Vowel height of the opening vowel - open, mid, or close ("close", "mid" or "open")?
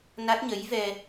open